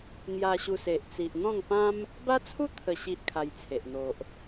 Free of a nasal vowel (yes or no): no